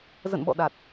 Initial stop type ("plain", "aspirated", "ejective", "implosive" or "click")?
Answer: implosive